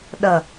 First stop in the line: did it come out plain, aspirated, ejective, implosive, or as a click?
implosive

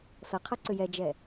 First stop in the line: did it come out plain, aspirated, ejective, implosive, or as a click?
aspirated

